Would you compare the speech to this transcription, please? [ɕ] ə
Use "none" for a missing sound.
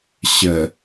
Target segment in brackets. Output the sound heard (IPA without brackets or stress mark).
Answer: ɕ